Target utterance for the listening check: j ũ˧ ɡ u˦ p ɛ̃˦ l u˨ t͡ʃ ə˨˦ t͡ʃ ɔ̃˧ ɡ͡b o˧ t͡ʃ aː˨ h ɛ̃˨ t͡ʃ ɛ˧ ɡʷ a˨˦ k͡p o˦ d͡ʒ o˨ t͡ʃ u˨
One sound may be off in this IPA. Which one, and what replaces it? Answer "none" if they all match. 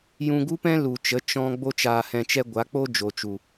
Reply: none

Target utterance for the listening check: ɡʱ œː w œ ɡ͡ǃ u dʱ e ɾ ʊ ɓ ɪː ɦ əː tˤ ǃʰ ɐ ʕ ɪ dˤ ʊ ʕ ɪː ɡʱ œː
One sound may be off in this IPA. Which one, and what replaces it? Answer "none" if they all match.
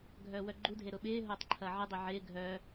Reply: əː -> ʊː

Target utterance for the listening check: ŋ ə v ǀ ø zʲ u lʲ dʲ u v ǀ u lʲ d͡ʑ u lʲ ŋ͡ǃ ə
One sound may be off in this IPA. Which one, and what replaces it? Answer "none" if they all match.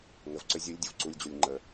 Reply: none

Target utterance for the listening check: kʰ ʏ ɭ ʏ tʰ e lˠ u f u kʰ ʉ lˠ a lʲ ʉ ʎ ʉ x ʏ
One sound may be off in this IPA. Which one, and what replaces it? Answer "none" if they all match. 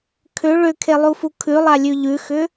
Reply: tʰ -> kʰ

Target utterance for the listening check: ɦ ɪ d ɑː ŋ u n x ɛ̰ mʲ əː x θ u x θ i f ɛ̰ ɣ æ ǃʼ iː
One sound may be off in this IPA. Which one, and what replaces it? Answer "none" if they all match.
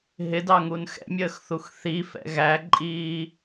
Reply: ɑː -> ɑ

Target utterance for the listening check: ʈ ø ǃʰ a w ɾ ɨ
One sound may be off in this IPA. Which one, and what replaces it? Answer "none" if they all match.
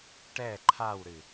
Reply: ø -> ɛ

